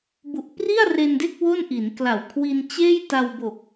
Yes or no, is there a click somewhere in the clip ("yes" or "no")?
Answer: no